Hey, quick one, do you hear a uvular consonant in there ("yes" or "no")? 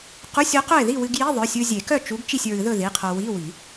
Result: yes